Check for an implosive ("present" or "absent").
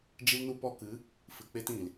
absent